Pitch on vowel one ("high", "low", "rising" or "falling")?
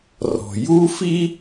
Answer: low